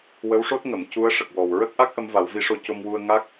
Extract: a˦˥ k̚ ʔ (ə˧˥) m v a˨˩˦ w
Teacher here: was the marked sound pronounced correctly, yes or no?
yes